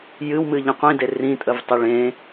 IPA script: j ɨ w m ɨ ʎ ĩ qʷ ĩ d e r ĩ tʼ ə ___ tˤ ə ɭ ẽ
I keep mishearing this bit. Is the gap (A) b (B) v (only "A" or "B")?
B